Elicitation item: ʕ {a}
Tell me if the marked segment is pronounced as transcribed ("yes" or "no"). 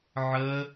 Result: no